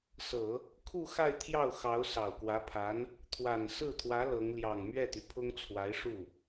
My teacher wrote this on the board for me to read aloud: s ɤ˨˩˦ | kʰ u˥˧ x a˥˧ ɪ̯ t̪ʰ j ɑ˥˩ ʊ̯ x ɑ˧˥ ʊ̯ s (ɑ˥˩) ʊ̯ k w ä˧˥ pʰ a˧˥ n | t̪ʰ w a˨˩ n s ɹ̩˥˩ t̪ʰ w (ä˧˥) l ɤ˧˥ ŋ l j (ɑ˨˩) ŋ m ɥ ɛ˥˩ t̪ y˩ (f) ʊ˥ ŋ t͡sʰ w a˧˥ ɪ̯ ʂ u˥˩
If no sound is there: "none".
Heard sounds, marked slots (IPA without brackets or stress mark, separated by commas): ɑ˨˩, ä˧˥, ɑ˨˩, pʰ